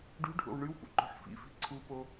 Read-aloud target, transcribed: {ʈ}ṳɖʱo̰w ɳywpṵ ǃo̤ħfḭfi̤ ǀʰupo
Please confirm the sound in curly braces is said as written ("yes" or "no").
no